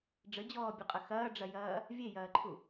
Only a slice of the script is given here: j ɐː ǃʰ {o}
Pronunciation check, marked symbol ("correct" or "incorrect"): incorrect